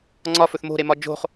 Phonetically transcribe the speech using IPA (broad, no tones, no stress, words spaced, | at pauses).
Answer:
ŋ͡ǀɒfɵθ mo̤ɾemɒ d͡ʒo̤χ